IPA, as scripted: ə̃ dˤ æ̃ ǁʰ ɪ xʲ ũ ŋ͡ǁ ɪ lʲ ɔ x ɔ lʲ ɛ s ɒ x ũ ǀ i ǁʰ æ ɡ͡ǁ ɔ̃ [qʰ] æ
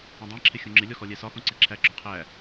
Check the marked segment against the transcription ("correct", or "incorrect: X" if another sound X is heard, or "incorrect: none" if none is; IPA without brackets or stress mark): correct